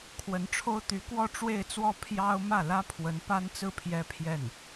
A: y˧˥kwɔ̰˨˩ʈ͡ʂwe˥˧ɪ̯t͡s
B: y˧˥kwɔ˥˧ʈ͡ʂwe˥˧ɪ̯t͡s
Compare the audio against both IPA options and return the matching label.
B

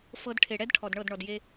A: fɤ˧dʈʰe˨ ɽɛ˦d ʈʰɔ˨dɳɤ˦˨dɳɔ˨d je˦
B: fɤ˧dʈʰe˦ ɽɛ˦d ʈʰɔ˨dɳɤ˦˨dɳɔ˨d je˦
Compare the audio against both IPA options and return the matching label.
A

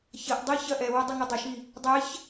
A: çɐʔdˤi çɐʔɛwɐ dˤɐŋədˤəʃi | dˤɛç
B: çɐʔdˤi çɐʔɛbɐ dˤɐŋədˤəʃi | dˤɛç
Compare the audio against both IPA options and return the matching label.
A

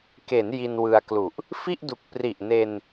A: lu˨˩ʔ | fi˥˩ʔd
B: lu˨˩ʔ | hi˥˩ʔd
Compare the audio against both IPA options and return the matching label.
A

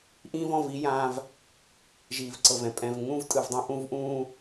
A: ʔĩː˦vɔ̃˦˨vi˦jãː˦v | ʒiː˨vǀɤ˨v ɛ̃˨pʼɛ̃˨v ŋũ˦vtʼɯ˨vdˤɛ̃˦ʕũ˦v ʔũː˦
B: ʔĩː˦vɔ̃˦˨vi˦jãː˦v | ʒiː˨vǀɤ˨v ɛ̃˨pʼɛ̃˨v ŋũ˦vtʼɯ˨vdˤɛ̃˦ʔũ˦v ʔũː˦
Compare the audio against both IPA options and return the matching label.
B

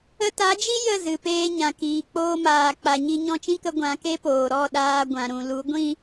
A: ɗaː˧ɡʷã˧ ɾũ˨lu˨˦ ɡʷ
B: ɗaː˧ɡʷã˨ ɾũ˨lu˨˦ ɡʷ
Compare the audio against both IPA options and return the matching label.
B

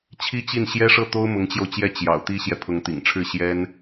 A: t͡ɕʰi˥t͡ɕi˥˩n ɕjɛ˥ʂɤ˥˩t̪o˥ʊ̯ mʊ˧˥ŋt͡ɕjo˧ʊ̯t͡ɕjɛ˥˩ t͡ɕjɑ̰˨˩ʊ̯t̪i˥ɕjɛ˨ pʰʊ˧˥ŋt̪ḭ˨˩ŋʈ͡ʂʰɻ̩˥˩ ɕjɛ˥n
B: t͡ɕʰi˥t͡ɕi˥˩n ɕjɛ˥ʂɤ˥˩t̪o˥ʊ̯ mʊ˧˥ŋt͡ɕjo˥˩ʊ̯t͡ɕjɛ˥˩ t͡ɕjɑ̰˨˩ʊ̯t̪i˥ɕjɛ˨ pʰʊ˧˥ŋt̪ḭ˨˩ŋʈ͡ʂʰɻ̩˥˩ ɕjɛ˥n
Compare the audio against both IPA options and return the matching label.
A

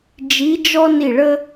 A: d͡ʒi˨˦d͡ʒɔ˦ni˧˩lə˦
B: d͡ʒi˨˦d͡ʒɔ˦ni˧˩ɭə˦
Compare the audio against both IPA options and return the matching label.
B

